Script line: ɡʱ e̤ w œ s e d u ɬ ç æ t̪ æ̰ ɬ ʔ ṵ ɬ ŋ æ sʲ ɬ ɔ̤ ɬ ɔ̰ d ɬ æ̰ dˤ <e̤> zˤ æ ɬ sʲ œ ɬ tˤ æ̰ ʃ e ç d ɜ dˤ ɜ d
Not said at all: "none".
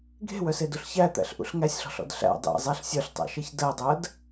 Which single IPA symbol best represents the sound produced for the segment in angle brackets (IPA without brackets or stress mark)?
ḛ